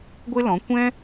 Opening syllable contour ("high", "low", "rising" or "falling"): high